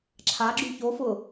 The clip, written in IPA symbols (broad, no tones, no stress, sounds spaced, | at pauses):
ǁʰ a ɡ͡ǁ y ç o f ʊ